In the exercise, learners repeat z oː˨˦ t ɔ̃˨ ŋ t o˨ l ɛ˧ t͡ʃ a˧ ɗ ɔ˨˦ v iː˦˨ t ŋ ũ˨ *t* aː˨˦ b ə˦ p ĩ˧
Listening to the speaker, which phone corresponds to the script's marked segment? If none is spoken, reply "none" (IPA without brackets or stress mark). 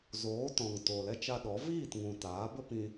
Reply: t